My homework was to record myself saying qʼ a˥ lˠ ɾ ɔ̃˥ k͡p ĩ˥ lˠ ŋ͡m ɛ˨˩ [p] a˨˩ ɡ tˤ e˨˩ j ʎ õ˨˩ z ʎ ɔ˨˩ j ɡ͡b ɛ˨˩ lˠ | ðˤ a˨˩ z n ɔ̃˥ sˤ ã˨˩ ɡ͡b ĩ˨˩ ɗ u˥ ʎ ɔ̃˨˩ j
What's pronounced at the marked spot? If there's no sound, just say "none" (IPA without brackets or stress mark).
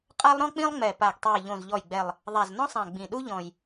p